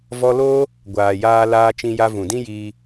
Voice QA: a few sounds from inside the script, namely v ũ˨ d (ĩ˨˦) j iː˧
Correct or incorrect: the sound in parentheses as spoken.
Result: incorrect: ĩ˦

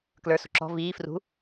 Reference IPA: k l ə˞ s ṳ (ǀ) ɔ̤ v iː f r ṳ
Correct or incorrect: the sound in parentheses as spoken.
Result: incorrect: ǁ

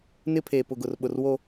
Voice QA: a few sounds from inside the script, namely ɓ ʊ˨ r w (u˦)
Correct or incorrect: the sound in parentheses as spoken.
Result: incorrect: o˦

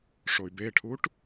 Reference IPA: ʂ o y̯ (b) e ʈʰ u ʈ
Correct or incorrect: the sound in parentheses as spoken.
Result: correct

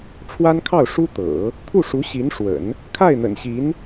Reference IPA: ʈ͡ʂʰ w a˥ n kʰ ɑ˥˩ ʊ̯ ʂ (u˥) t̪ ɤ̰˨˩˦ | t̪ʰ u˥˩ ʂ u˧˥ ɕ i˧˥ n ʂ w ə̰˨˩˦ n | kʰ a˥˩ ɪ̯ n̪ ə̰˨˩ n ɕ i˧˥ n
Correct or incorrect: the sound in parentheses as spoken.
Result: correct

